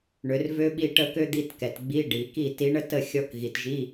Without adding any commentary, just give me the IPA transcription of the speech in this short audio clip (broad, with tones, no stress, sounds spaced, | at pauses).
ɳ ø˩˧ r v ø˥ ɓ i˥˨ ʈ ə˥˨ k ø˥ d̪ i˧˥˧ t k ɛ˩ t ɡ͡b i˧˥˧ ɖ i˩˧ k i˥˨ t i˧˥ ɳ ə˥ t ə˥˨ xʲ ɔ˧˥ k ɣ i˩ t ʒ i˧˥˧